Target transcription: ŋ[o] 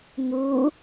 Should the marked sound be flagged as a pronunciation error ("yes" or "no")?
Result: yes